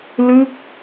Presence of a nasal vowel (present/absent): absent